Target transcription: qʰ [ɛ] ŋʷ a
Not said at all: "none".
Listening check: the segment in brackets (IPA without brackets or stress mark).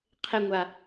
ɛ